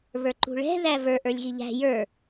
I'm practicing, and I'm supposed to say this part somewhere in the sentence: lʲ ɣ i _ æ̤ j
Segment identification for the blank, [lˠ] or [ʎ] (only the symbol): ʎ